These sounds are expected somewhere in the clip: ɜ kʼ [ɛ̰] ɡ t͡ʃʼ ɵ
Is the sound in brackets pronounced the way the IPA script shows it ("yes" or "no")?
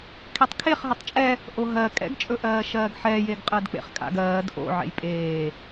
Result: yes